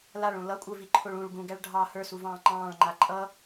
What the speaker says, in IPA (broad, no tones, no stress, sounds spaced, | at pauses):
l a ɭ õ l ʌ kʷʼ ə˞ v i ǃʰ o ɭ ũ ɭ ɡ ũ ɡ æ ɭ ɖʱ ɑ h ə˞ s u v ɑ̃ː ŋ͡ǃ ɑ̃ː ɭ ŋ͡ǃ a ǃʼ ʌ